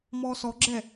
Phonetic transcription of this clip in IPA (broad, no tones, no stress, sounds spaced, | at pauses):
m ɔː s ɔ ɡ͡ǁ ɛ